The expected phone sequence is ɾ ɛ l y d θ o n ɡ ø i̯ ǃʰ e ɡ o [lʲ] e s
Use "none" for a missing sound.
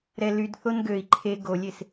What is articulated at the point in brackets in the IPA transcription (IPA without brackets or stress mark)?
lʲ